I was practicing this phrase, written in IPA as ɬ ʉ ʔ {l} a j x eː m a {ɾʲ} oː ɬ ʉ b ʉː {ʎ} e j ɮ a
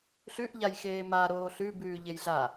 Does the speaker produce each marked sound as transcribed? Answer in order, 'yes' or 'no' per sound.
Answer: no, no, yes

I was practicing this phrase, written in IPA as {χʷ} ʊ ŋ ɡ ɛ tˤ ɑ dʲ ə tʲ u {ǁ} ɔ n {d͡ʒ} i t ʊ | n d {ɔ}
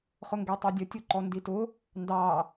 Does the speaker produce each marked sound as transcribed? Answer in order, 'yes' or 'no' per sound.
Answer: no, no, no, no

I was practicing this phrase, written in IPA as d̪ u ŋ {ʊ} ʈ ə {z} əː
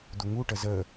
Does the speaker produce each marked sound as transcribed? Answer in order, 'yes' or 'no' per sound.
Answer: no, yes

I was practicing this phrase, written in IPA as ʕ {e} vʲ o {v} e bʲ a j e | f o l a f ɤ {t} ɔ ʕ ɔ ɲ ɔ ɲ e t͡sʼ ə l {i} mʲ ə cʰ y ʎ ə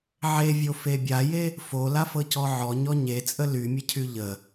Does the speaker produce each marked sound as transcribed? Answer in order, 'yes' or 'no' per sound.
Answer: yes, no, no, no

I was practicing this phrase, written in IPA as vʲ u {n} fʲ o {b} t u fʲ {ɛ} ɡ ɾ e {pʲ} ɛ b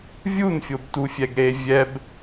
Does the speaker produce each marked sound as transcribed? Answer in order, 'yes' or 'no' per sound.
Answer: yes, yes, yes, no

